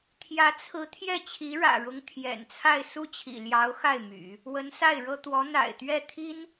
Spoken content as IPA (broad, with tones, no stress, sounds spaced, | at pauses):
t̪ʰ j ä˧˥ t͡sʰ ɹ̩˧˥ t̪ʰ j ɛ˥˩ t͡ɕʰ i˧˥ ɻ ä̰˨˩ ɻ ʊ˧˥ ŋ t̪ʰ j ɛ̰˨˩ n t͡sʰ a˥˧ ɪ̯ s u˥˩ t͡ɕʰ ḭ˨˩ l j ɑ˧˥ ʊ̯ x a˥˩ ɪ̯ m y̰˨˩˦ | w ə˧˥ n s a˥˩ ɪ̯ ɻ ɤ˥ t̪ w ɔ˧˥ n̪ a̰˨˩ ɪ̯ t̪ ɥ ɛ˥˩ t̪ʰ i˥ n